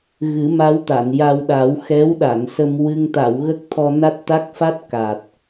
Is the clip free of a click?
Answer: yes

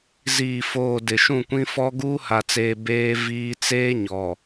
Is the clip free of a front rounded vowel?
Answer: yes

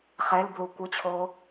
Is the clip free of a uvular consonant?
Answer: no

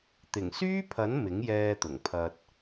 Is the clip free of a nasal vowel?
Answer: yes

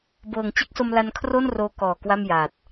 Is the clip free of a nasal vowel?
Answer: yes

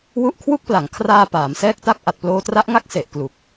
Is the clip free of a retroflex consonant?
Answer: yes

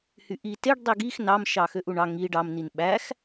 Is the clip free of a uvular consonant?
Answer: yes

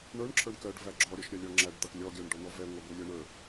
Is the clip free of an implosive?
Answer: yes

